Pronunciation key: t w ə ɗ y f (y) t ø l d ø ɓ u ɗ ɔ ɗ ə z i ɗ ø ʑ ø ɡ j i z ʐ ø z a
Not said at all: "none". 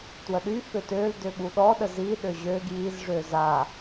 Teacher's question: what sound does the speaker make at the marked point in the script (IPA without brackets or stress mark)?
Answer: ø